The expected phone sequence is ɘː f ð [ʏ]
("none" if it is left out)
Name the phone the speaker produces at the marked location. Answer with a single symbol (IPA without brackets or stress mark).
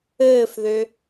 ʏ